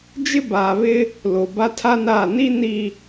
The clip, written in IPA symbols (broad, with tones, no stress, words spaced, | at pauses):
d͡ʒɪ˦baː˨ βɪ˦ | lo˨ba˦tʰa˦naː˦˨ ni˦ ni˨